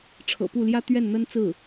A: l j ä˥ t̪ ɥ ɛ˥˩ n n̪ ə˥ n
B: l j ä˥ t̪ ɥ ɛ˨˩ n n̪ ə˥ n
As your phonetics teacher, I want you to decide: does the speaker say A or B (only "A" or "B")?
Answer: A